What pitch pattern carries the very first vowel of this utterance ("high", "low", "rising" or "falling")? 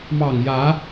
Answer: low